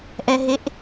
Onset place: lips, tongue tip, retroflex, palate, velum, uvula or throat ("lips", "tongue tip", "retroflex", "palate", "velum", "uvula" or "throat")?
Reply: throat